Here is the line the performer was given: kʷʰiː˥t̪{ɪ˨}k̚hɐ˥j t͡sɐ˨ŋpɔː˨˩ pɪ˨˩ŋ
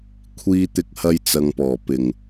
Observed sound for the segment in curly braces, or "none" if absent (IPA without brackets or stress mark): ɪ˥